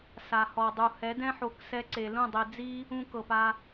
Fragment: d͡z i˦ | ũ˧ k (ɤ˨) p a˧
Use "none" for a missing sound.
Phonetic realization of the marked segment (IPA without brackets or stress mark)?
ɤ˨